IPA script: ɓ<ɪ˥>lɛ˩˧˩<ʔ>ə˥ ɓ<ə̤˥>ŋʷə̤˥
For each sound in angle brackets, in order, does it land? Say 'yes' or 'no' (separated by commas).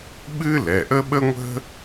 no, yes, no